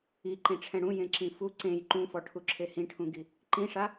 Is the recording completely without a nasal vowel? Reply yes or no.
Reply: no